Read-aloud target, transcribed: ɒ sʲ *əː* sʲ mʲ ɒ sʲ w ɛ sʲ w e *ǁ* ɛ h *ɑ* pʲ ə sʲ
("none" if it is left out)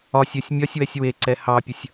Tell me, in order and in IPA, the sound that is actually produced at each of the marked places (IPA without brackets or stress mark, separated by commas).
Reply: əː, ǀ, ɑ